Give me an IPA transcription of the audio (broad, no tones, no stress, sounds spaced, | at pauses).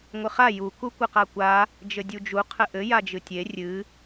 ŋʷ ɨ χ a j u k u kʷ ɨ q a kʷ a | d͡ʒ ɘ dʲ u d͡ʒ u qʰ ɘ ʔ ɘ j a d͡ʒ ɨ tʲ e rʲ ɨ